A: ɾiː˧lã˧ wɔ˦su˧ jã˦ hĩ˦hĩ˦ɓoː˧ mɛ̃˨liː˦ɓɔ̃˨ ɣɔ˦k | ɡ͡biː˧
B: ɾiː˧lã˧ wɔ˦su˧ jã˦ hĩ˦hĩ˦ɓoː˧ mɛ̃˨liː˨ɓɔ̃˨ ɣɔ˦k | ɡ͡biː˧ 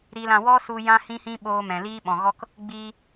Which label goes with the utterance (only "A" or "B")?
A